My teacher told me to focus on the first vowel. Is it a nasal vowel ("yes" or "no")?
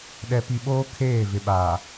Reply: no